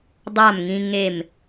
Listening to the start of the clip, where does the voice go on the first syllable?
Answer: falling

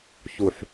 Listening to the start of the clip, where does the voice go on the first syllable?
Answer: low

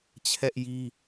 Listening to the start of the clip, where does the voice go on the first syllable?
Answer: high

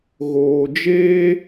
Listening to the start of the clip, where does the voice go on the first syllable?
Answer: low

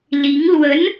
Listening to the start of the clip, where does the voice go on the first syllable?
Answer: rising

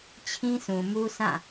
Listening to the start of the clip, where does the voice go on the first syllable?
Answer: high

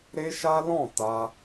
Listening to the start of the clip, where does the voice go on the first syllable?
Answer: high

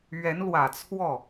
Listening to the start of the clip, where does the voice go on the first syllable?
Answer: rising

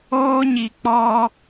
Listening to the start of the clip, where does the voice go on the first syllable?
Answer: high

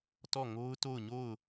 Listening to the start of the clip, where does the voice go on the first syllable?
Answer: falling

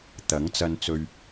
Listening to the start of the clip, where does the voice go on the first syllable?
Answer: rising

